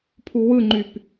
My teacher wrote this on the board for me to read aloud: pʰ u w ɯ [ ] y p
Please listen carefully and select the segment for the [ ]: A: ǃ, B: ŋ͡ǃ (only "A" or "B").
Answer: B